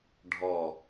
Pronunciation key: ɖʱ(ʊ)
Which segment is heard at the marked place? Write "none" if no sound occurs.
ɔ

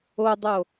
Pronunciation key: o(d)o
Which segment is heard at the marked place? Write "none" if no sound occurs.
dˤ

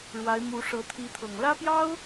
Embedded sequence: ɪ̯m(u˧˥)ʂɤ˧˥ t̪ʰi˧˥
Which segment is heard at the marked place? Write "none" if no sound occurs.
u˧˥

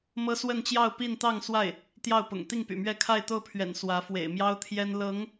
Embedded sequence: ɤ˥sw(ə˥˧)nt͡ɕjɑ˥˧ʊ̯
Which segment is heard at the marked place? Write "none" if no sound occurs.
ə˥˧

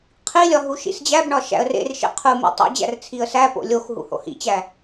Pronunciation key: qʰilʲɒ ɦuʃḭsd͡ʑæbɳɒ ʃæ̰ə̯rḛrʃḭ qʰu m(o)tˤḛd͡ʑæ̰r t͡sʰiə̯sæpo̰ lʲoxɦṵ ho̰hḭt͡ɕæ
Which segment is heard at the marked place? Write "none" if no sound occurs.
o̰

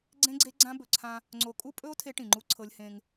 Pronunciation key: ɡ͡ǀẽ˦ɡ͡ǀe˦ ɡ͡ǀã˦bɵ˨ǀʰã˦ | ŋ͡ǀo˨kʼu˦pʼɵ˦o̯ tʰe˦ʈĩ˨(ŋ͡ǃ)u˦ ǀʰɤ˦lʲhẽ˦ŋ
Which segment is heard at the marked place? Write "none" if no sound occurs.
ŋ͡ǃ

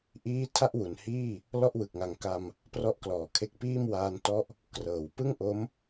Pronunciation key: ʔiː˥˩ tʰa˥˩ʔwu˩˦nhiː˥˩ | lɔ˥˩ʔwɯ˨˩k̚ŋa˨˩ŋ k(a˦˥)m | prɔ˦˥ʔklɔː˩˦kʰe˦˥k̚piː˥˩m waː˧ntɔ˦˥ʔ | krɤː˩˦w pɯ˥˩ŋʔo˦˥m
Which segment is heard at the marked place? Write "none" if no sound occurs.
a˧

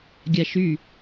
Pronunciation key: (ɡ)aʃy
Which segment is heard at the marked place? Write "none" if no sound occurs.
ɡʲ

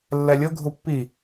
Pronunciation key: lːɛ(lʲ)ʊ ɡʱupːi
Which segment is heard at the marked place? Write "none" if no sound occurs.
lʲ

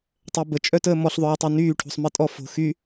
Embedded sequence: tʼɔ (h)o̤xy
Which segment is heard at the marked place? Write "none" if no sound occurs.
f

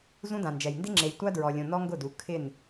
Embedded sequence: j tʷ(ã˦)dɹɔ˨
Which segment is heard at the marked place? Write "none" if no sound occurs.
a˦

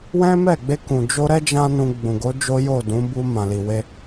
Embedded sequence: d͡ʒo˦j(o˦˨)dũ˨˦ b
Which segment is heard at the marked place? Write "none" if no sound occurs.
o˦˨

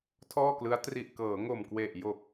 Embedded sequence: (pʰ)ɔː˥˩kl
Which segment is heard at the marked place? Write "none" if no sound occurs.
tʰ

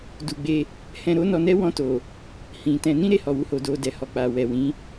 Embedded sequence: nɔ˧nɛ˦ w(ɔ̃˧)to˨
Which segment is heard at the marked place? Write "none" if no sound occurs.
ɔ̃˧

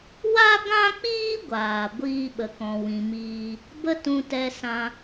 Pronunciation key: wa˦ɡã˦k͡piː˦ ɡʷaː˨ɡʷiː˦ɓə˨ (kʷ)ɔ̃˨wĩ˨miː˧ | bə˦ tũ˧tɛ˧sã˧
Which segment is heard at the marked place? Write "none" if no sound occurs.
k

